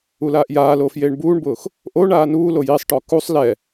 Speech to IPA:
u l aː ʔ j aː l oː f j eː ɳ b uː ɳ b ʊː x | ʔ o ɳ aː n uː l o j i sˤ ʈ ɔ k u sˤ l ɛ

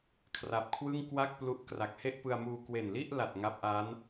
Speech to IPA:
kʰ r a˨˩ p̚ kʰ w ɯ˥˩ ŋ k w a˥˩ k̚ p l u˦˥ ʔ k r a˨˩ k̚ h e˥˩ ʔ p ɯ˧ a̯ m uː˧ k w e˨˩ n l i˥˩ ʔ l a˨˩ t̚ ŋ a˦˥ p̚ ʔ a˦˥ n

